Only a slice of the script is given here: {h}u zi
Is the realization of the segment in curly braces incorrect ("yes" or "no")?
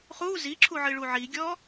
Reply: yes